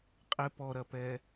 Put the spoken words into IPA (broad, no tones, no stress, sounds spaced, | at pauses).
qʼ ɪ p ɔ ɾ ɐ p ɛː